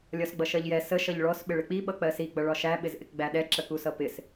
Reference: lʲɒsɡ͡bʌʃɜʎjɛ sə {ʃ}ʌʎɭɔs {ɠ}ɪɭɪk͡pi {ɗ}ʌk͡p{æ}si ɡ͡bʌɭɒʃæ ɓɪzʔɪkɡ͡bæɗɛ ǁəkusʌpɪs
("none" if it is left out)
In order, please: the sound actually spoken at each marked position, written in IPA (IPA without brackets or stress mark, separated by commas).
ʃ, ɓ, ɓ, ɜ